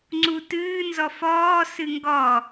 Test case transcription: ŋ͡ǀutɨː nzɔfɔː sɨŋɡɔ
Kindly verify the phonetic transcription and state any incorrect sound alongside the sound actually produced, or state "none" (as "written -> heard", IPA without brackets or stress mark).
none